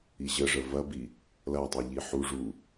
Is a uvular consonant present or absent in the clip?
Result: absent